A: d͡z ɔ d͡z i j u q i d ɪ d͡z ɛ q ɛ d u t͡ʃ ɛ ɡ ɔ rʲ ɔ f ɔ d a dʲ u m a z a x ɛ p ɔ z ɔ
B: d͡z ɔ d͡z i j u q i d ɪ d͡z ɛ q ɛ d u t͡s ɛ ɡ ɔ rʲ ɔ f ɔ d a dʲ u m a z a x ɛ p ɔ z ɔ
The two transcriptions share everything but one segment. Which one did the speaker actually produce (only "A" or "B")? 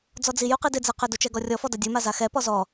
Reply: A